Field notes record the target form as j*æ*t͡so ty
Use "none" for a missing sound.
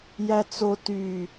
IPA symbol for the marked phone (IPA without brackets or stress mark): æ